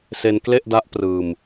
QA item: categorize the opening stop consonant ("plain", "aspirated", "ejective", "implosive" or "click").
plain